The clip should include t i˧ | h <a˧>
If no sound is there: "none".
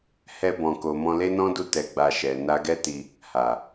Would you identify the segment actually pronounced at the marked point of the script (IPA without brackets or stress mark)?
a˨